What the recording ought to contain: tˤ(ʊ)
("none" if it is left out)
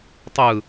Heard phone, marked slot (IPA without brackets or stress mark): ɯ